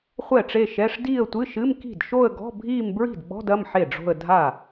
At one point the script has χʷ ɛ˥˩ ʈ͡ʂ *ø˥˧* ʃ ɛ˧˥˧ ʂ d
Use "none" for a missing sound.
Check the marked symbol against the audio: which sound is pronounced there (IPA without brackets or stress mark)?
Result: e˥˧